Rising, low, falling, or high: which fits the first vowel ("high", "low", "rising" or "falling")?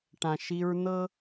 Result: low